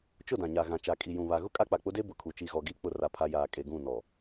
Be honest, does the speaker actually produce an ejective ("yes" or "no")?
yes